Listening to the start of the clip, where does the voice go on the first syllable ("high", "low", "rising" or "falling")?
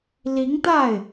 rising